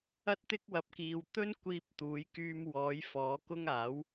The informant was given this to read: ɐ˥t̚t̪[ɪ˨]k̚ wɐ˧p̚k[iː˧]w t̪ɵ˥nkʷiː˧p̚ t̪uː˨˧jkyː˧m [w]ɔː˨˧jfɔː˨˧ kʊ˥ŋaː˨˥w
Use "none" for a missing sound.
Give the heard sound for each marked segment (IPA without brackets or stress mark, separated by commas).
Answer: ɪ˥, iː˧, w